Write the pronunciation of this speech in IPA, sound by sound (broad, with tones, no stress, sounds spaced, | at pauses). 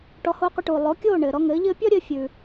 ʈ ɔ˩˥ h oː˧ qʷ ɘ˧ ʈ uː˩ lˠ o˩˥ kʲ oː˥˩ ɳ ɘː˩ ɾ ɔ˧ ŋ ɘː˩˥ ʎ ɘː˥ pʲ ɔ˥ ɾʲ ɘː˧ fʲ ʉː˩